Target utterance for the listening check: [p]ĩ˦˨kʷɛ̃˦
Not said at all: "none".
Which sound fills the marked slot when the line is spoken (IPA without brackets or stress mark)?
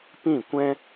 p